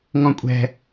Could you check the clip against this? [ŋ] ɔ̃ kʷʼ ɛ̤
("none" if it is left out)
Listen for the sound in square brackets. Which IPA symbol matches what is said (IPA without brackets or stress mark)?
ŋ